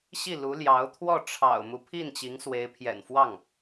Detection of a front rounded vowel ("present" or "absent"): absent